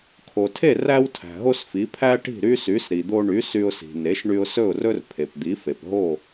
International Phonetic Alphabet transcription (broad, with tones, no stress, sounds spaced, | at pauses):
kʰ o˩ tʰ e˥˩ r æ˥ w tʰ æ̤˩ ɦ o˥ s f i˩˥ pʰ æ˥ ʈ i̤˥˩ ɾ y˥ s y˩˥ s ɾ i˩ d̪ o˧ ɳ y˩˥ s y˧ ʊ̯ s i̤˩ n e˩˥ ʃ ɳ y˧ ʊ̯ s ɵ˥˩ ʊ̯ r ɵ˥ r pʰ e˩ p d̪ i˩˥ f e˩ p ɦ o˥˩